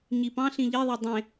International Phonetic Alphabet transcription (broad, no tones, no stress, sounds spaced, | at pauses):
ɲ i p ɑ̃ ɬ ĩ ʎ e ðˤ e dˤ ẽ